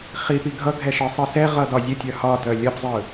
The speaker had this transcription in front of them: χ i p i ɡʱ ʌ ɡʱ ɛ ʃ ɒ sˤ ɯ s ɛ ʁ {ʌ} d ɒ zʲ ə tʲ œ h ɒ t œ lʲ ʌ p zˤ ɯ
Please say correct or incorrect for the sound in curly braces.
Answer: correct